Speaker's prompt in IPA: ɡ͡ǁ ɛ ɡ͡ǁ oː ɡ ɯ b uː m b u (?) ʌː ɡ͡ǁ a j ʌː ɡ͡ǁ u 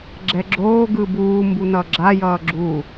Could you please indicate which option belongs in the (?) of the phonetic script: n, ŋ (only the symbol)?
n